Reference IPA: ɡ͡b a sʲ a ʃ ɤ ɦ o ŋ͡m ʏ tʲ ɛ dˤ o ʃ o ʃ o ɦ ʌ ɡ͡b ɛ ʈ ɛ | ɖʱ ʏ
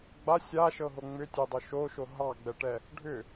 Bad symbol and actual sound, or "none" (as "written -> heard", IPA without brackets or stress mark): ʌ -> ɑ